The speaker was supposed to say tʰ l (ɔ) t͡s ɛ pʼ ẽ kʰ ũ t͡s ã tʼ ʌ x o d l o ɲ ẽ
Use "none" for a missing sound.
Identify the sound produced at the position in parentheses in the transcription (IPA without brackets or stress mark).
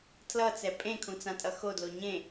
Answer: ʌ